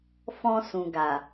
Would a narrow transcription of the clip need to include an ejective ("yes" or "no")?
no